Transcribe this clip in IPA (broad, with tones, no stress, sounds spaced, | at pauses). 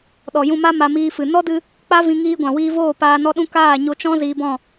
ɗ ɔ˨ j ũ˧ m a˦ m a˧ m iː˧ f ɨ˨ n ɔ˦ d ɨ˧ | k͡p a˦ v ĩ˧ ŋ iː˧ ɡʷ ã˨ w iː˧ v oː˦˨ p aː˧ n ɔ˦ ɗ ũ˦ k aː˦˨ ɲ o˧ t͡ʃ ɔ̃˦ z iː˧ b ɔ̃˦˨